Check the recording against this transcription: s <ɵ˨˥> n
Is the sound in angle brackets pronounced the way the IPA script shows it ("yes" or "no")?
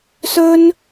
no